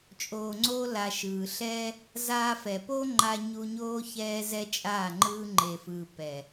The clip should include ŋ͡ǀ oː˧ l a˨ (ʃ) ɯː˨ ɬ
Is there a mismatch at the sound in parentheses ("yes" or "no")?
no